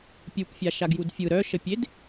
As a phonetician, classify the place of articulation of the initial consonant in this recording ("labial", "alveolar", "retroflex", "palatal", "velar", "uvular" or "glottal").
labial